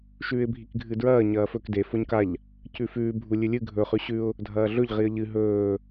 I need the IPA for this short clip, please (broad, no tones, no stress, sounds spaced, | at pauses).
ʃ ʉː ɪ̯ bʱ i k ɡʱ ɨ d ɹ ɐː ɲ ɐː f ɵ k d e f o ɲ k a ʎ | c ʉ f ʉː bʱ u lʲ ɨ lʲ ɨ ɡʱ ɵ χ ʉ ɕ ʉ ʊ̯ | dʱ ɐː ɮ ɵ ʎ ʁ i ə̯ ʎ ɨ ɦ ɵː